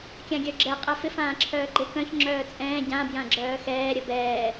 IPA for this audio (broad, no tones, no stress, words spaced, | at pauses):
kʲãɡʲœɡ͡ǁɛ qʼɛfɪf ãːǁʰœːɡ͡ǃɪ kœ̃ç ŋ͡ǁœːt͡sʼɛ̃ː ɟã bjãɡ͡ǁœːxɛː ɾʲəbɛː